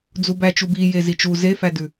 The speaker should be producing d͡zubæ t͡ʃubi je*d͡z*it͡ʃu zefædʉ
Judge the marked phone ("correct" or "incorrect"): incorrect